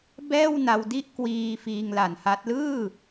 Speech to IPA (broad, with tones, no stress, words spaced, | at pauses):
bɛː˥˩wna˧wdi˥˩ʔ kwiː˧ fiː˧ŋla˨˩nha˦˥t̚ lɯː˥˩